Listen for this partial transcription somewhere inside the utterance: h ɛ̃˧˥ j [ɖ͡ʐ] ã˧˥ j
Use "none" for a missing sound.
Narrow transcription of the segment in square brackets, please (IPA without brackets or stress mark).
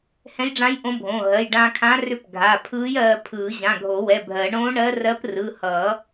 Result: ɖ͡ʐ